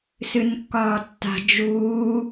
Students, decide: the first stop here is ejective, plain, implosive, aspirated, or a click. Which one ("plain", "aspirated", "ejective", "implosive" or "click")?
plain